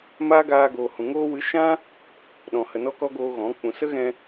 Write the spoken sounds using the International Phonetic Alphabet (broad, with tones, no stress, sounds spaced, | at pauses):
m aː˦ ɡ aː˧ ɡ oː˨ h ũ˨ ŋ oː˧ w ɨ˨˦ ʃ ã˦ | ɗ ɔ̃˨ h ə˨ n ɔ˧ k ɔ˧ ɡ oː˧ ɣ ɔ̃˨˦ k͡p ũ˨ s ə˦ ɣ ɛ̃˧